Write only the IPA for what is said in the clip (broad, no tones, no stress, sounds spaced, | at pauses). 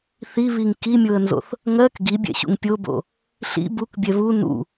θ i β i ŋ k i mʲ o ə̯ n z o̰ θ | ŋ ɜ k ɡ i bʲ ɛ̰ ɕ ṵ ŋ pʲ o b o̰ | ɬ ḭ b u k bʲ ɛ β u n ṵ